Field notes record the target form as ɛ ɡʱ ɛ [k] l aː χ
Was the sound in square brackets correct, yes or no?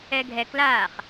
yes